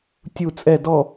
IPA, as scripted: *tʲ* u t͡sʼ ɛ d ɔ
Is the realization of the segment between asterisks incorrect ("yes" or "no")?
no